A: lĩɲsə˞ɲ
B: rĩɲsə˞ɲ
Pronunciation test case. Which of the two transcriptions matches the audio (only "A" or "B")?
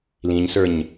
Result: A